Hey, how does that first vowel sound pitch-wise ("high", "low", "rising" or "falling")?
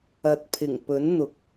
low